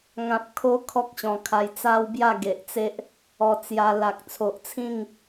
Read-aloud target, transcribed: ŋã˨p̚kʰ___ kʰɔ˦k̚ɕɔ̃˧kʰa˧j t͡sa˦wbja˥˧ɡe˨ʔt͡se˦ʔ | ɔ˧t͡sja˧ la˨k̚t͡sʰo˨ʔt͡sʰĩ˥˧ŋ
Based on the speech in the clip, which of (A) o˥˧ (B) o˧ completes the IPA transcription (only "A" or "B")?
B